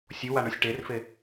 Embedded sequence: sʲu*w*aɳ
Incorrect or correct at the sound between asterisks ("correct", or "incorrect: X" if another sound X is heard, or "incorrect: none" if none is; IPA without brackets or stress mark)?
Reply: correct